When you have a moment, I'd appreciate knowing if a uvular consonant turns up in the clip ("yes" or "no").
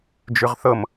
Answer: yes